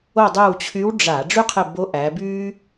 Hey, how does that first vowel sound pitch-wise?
falling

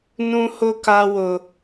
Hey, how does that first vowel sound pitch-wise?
high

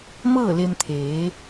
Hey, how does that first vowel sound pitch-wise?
falling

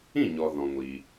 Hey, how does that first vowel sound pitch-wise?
falling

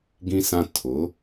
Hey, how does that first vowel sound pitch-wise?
high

